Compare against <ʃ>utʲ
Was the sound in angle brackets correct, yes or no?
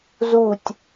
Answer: no